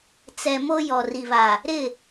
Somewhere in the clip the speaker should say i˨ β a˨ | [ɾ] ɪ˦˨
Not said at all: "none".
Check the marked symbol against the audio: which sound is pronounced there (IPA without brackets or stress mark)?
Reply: ɾ